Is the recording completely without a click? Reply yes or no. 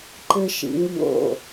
no